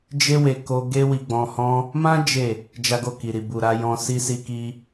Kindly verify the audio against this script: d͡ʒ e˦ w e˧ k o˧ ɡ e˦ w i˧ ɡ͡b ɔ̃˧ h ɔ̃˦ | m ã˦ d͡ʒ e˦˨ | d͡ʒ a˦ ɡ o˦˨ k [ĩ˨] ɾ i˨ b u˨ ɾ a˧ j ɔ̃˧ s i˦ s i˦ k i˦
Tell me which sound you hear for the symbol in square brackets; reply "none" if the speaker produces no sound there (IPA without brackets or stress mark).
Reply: i˨